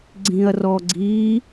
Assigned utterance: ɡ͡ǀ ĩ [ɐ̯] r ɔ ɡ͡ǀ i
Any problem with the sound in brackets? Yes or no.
no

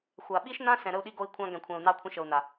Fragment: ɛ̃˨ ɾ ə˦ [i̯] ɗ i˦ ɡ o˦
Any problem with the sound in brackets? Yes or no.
yes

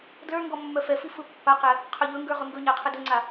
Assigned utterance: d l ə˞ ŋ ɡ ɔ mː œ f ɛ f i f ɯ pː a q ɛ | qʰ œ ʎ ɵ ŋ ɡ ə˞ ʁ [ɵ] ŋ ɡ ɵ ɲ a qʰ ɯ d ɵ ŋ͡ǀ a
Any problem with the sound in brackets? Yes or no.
no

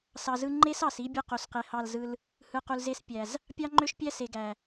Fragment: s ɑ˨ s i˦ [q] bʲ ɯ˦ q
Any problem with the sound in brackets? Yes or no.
yes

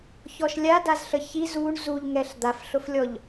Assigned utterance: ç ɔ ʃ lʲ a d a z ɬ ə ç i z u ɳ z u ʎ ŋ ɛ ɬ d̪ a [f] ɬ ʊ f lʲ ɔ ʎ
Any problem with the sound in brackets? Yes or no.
no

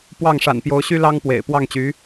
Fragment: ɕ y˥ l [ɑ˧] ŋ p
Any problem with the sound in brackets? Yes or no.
yes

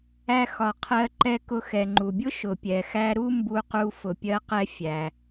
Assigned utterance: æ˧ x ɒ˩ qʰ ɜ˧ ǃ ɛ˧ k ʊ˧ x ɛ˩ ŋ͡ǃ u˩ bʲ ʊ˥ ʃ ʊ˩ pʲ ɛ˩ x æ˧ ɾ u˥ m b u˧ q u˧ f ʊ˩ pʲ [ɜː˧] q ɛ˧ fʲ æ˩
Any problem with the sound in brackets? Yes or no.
yes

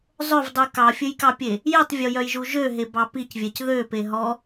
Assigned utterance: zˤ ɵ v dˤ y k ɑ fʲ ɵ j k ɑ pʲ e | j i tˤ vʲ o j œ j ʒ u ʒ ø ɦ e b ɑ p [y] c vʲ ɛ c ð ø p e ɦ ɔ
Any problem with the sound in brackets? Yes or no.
yes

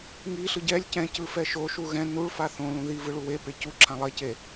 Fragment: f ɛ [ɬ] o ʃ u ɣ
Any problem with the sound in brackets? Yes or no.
yes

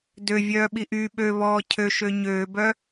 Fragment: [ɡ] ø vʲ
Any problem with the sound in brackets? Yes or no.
yes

